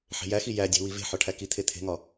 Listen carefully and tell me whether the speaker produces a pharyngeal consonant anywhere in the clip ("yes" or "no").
yes